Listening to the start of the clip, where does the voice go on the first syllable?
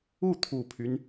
falling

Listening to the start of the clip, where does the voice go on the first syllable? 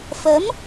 rising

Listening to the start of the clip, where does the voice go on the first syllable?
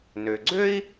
low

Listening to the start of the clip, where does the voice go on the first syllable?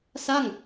falling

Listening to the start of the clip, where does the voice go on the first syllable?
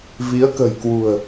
rising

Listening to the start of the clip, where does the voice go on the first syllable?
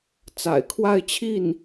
low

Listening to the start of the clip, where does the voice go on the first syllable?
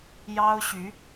high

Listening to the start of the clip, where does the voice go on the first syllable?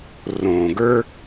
low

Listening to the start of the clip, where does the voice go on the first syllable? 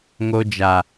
high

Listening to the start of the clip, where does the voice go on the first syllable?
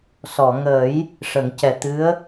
low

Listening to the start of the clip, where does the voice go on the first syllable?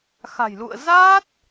low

